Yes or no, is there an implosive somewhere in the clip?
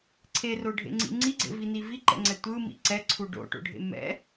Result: no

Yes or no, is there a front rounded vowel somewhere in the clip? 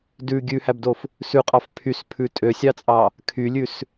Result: yes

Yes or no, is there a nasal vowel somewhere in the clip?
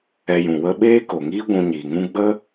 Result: yes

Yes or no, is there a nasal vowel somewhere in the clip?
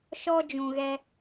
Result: yes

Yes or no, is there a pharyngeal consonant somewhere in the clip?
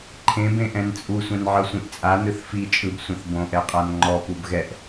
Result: yes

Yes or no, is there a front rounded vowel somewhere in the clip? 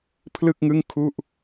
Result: no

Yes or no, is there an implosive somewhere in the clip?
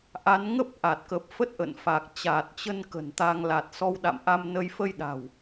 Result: yes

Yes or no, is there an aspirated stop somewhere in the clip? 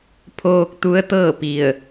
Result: yes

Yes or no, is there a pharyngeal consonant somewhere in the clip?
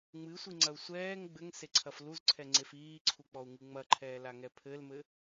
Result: no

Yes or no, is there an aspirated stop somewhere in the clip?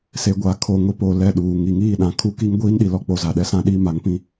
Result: yes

